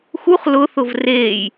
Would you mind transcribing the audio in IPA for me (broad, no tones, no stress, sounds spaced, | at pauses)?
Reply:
x u χ l ʊ θ ʊ v r eː j